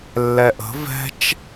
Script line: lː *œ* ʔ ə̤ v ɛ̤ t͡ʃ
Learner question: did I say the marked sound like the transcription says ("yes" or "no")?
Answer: no